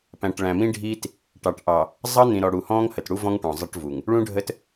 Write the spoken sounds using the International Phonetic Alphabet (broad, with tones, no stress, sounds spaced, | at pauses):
p æ̃˨ ʈ ɭ æ̃˨ m ĩ˦ ɖʱ iː˦ t | ʈ ɑ˨ ʈ ʔ ɑ˨ | zˤ ʌ˦ n̪ ĩ˨ ɾ ɔ˨ ɽ u˨ h ɔ̃ː˦ ŋ h ə˨ t ɽ u˦ v ɔ̃˦ ŋ ʈ ɔ̃˨ zˤ ʌ˦ ʈ v u˨ ŋ | ɭ ũ˦ ɖʱ ə˦ t